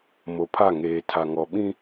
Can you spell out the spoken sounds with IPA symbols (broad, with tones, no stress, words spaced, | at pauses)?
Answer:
mo˨pʰa˦˨ ŋeː˨tʰa˨ŋɔ˨ɓĩ˦